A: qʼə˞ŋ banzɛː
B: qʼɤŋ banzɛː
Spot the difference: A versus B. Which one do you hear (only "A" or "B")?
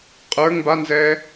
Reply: A